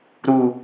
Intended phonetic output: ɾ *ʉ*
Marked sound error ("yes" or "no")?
yes